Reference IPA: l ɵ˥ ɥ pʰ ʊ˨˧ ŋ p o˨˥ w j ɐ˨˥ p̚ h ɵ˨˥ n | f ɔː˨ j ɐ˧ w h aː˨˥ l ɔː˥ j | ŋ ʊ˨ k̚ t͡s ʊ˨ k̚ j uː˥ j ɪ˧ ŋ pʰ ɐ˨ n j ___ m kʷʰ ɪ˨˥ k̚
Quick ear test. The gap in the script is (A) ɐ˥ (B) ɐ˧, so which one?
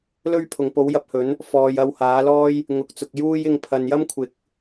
A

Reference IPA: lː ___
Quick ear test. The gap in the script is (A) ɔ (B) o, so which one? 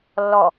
A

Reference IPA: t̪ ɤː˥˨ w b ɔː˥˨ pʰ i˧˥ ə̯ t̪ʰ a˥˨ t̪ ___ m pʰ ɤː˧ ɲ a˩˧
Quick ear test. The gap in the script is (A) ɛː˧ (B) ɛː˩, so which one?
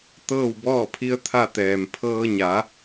B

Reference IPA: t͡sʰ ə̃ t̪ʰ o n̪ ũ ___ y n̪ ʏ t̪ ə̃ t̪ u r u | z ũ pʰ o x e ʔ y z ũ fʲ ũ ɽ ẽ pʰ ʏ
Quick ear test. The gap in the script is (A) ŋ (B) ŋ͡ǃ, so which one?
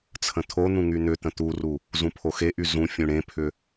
A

